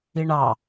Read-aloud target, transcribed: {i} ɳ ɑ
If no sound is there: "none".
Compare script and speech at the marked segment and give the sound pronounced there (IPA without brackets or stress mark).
i